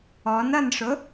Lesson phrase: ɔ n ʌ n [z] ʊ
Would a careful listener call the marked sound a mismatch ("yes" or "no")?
yes